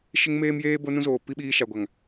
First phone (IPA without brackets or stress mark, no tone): ʃ